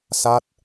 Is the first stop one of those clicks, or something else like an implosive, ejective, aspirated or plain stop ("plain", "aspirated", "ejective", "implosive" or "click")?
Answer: plain